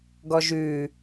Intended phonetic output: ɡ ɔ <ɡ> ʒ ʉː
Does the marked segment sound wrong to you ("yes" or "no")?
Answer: yes